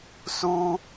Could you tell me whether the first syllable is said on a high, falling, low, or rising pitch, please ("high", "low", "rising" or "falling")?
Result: high